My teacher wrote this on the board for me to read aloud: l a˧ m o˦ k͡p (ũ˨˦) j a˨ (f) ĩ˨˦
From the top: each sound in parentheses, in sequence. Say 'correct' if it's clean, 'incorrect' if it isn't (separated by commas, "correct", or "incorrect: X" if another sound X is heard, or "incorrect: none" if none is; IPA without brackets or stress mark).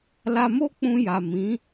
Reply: incorrect: ũ˧, incorrect: m